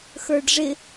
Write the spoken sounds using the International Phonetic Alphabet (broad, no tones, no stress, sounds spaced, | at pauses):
x ə˞ ɖ ʐ ɪ